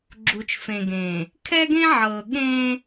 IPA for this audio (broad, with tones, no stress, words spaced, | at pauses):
ɡ͡ǁu˨t͡ʃfẽ˨ ɡẽː˨ | kʰɛ˦ɡẽ˦ʕɤː˨ ɠẽː˦